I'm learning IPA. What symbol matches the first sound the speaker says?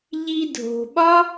ʎ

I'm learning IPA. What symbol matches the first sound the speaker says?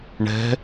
ɳ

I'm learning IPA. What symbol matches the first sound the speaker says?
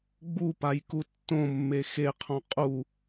ɡ͡b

